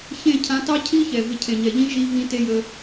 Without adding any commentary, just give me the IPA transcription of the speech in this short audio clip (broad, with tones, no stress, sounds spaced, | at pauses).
ç ẽ˦˨ cʰ ã˧ t ɑ˦ cʰ i˦ ç ɛ˨ v ɪ˧ cʰ ẽ˨ ɲ ɛ˨ ʎ ĩ˦ ʒ i˦ v ĩ˦ t e˦ j ə˧